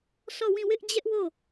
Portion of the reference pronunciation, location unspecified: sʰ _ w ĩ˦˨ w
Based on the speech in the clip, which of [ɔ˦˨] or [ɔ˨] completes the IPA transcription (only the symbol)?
ɔ˦˨